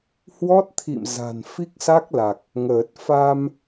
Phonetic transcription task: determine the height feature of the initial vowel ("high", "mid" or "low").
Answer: mid